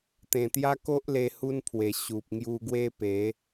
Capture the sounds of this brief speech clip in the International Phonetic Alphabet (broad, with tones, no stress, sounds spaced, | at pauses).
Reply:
t̪ ẽ˨˩ t̪ j a˦ k o˦ ʔ l e˧ h u˦ n pʰ w e˨˩ ɕ u˨ p̚ ŋ j u˧ ɡ w e˦ p e˨˦